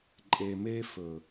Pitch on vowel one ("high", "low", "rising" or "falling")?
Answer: low